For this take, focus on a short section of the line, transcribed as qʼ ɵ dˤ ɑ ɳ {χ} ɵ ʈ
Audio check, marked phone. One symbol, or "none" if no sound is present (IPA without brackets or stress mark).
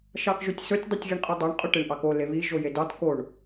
qʼ